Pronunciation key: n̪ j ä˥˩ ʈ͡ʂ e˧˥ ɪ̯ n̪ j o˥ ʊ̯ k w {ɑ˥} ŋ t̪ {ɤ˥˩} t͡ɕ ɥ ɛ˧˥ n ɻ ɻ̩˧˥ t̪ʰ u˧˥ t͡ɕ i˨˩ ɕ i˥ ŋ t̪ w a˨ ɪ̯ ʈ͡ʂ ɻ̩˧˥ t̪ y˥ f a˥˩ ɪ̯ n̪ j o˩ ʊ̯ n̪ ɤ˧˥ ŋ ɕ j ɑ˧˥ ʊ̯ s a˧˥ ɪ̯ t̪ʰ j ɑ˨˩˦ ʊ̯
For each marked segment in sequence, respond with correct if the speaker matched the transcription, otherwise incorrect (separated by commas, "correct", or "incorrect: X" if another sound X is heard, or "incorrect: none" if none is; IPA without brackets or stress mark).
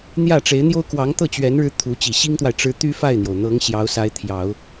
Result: incorrect: ɑ˧˥, correct